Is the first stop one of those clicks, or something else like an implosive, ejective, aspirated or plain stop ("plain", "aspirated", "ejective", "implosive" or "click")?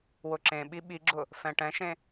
click